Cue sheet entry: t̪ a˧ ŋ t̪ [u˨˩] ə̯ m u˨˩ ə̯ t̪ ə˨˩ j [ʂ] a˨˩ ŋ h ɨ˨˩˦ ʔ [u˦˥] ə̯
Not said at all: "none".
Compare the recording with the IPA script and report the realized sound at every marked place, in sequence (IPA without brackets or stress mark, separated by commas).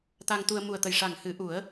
u˧, ʂ, u˨˩˦